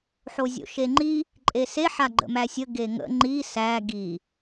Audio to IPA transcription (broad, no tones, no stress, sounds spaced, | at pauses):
ħ o zʲ o̰ ʃ e ŋ͡ǃ i | ǃʼ e s e ħ a ɡ͡ǃ ə̰ m æ sʲ ə ɡ e ŋ ə̰ ŋ͡ǃ i s æ ɡ i